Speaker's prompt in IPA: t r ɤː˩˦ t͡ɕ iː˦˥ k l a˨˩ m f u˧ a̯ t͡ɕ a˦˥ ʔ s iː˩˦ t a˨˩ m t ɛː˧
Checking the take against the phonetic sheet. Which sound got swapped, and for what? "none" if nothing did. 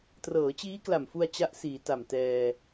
none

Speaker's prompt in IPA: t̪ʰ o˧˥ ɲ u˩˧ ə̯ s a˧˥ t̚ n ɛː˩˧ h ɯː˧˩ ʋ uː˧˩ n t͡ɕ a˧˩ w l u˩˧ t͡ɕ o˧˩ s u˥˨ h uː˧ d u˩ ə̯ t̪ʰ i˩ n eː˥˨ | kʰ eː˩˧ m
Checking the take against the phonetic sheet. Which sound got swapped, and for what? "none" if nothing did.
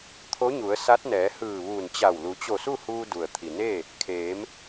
none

